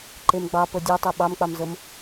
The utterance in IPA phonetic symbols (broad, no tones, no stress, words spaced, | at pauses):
ǃemɡ͡bɑ pɤdʲɑtˤɤ ɓɑmk͡pɑmzɤm